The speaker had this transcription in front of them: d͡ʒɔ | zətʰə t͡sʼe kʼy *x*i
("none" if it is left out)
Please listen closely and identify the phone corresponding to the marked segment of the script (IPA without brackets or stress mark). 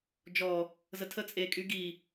ɡ